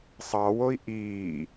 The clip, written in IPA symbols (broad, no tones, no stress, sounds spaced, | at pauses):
sˤ ɑ w o i̯ ʔ iː